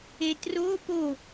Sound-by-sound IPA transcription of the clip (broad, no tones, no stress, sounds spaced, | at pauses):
e t r o p o